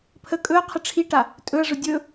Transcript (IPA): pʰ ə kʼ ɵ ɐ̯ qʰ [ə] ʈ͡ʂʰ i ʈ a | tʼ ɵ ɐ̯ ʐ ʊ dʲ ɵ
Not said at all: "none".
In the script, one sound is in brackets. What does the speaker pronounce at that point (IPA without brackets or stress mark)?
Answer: ə